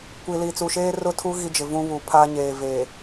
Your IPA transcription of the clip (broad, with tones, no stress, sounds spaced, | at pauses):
kʷ i˨ l i˨ t͡s u˨ ʃ eː˦ r ʊ˦ tʰ u˦ ɣ i˦ d͡ʒ ɪ˨ v ũ˦ β u˨ pʰ a˦ ɲ eː˨ v e˨